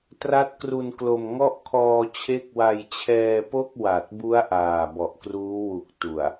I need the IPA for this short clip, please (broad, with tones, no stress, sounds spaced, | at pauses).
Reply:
t r a˦˥ t̚ k r u˧ n k l o˧ m ŋ ɔ˥˩ ʔ kʰ ɔː˧ t͡ɕʰ e˦˥ k̚ w a˧ j t͡ɕʰ ɛː˧ p o˥˩ k̚ w a˨˩ t̚ b u˦˥ a̯ ʔ aː˨˩ b ɔ˨˩ ʔ k r uː˦˥ w u˨˩ k̚ t u˨˩ a̯